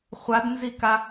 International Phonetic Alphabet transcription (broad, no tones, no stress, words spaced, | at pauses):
χʷadnzika